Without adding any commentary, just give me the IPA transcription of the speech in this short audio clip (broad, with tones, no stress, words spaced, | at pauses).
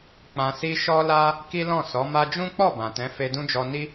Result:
k͡pã˧si˦ ʃɔ˦la˦ | ki˦lɔ̃˦˨ sɔ˨˦ma˦ d͡ʒũ˦k͡pɔ˦˨ bã˨tɛ̃˨˦ fe˧dũ˦d͡ʒɔ˧ni˦